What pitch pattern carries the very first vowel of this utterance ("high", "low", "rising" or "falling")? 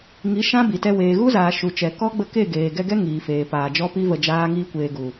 rising